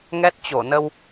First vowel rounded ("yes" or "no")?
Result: no